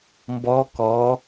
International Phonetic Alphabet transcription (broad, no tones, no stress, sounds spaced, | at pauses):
m b ɔ k ɔ